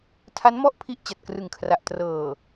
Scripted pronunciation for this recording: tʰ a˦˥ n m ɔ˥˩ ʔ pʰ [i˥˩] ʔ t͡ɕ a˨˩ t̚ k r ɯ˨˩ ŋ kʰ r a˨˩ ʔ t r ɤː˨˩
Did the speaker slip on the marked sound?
no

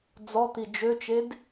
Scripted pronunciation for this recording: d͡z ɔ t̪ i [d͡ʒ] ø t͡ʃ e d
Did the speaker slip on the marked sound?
no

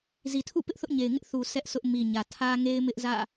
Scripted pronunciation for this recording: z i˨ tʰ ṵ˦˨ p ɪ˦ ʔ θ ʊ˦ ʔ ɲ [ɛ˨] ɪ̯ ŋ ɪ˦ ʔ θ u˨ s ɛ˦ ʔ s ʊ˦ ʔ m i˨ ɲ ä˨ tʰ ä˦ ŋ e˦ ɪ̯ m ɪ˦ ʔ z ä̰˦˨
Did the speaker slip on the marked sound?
yes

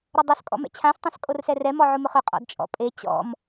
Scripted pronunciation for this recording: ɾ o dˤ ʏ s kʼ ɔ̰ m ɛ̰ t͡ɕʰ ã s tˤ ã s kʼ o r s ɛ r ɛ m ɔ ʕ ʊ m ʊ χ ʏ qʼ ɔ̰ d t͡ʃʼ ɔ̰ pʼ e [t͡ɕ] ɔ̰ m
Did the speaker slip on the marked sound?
no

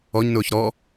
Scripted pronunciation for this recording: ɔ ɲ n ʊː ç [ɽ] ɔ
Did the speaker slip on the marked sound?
yes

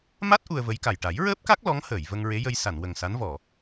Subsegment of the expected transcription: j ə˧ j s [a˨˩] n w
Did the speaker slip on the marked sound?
yes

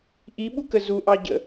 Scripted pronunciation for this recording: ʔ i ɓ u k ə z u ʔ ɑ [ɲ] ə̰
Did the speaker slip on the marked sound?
yes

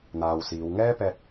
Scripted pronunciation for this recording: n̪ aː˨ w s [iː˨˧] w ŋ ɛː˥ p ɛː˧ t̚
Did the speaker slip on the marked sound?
no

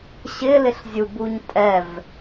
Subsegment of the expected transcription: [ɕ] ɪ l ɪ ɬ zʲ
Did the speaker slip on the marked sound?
no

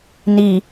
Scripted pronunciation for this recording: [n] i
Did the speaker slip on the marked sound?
no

